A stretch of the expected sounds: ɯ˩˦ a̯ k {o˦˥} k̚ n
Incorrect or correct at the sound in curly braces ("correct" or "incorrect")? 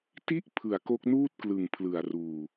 correct